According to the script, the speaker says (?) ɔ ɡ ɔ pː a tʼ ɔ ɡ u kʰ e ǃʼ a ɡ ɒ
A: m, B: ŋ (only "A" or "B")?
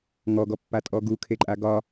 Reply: B